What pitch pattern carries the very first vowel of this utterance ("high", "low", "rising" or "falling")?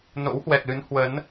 rising